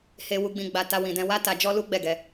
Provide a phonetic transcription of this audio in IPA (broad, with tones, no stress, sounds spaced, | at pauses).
h e˧ w u˧ ɡ͡b ĩ˧ ɡ͡b a˧ t a˧ w ĩ˨ d ɛ̃˧ w a˦ t a˧ d͡ʒ ɔ˦ l u˦ ɡ͡b ɛ˦˨ ɡ ɛ˧